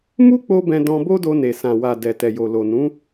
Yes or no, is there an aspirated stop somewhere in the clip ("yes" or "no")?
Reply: no